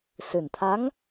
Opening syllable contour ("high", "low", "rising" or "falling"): low